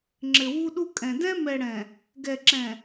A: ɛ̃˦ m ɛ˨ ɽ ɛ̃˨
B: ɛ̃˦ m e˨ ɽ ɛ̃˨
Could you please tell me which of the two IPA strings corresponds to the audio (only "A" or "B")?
A